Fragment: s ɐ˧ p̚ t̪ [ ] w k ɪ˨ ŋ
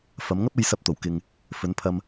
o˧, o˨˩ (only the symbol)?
o˨˩